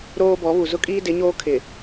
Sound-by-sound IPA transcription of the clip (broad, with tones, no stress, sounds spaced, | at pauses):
ɾ oː˦ b ɔ˨˦ β u˨ z ʊ˦ kʼ iː˦ d ɪ˨˦ ɲ oː˦ kʰ ɪ˨